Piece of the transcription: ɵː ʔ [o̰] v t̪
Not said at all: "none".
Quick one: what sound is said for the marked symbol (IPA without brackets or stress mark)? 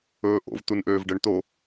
o̰